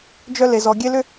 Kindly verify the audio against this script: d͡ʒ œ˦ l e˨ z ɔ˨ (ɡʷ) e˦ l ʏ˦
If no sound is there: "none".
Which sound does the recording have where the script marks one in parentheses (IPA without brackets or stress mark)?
ɡʲ